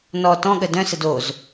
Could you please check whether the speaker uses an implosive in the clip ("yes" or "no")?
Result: yes